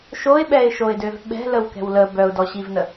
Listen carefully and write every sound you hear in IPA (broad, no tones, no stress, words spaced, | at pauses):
ʃoɪ̯ɓɛɪ̯ʃoɪ̯døv ɓɛ̤ləwkɛ̤w lə bœʊ̯dɔɕivnə